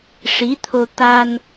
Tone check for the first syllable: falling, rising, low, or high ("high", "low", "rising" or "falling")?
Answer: rising